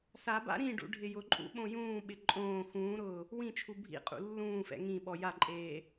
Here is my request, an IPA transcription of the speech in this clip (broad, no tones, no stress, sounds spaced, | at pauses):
s a b a̰ ɾ ĩ ɖ ṵ ɖʱ ɪ j ʊ ǃʼ ṵ ɓ õ j ũː ɓ ɪ ǃʼ õː x ũː ɾ ʊː | w ĩ t͡ʃʰ u bʱ ḭ qʼ ṵ lː ũː f ɛ̰ ŋ ĩ ɓ ɔ j a ǃʼ eː